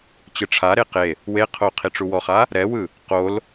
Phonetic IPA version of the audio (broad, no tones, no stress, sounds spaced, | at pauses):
t͡ɕ ɯ ʈ͡ʂʰ a ɾ e q e | w e qʰ o qʰ i ʈ͡ʂ u w ɔ χ a | ɾ ɛ w ɯ | q o l